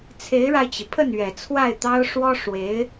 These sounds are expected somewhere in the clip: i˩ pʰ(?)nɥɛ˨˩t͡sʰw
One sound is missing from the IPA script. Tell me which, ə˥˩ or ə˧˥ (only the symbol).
ə˥˩